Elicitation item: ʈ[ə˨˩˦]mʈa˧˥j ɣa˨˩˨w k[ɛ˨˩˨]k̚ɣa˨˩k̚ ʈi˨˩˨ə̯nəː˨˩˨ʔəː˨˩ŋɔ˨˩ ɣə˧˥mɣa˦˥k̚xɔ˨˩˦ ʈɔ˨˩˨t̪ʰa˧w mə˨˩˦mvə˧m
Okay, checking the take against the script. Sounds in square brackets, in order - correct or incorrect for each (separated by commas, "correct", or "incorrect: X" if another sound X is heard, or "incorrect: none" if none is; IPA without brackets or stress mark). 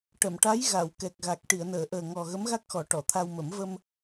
incorrect: ə˨˩˨, incorrect: ɛ˨˩